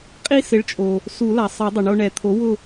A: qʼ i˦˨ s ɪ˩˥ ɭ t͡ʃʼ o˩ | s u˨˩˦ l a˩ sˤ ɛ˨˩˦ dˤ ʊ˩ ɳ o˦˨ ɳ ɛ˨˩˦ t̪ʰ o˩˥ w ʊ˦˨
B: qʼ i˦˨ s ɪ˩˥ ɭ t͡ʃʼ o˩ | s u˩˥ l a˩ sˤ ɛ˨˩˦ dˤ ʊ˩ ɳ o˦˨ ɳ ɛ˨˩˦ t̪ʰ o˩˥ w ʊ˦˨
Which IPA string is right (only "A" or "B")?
A